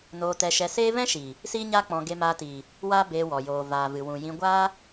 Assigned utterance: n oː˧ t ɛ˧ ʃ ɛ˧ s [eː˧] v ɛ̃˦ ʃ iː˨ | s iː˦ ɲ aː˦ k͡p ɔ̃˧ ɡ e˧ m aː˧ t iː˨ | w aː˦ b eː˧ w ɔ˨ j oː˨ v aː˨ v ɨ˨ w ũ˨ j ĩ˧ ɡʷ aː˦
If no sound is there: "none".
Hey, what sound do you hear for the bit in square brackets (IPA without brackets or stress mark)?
eː˦